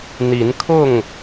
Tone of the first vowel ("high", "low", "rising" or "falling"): rising